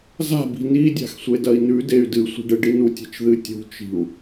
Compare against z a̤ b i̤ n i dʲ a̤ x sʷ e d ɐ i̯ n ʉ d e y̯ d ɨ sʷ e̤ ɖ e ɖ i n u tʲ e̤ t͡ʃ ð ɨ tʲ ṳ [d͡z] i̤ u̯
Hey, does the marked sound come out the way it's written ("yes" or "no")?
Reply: no